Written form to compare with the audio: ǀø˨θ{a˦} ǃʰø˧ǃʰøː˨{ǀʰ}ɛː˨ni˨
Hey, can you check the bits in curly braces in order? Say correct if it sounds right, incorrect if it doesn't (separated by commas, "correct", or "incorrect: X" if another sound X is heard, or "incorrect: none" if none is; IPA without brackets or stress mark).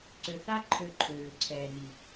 correct, correct